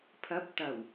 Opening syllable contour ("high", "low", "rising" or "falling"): rising